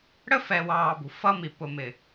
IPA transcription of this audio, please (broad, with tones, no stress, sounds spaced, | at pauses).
ɽ ə˦ f ɛ˨ w ɑː˨ b ṳ˨ f ʌ˦ m i˨ p ʊ˨ m ɪ˨